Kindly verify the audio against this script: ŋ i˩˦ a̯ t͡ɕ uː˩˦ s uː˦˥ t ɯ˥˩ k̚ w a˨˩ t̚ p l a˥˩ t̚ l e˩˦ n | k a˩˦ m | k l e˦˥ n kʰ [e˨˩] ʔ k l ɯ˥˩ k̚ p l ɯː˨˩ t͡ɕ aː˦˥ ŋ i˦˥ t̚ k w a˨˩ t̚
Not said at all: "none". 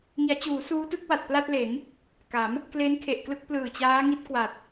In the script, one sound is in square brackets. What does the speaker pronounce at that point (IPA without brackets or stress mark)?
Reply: e˨˩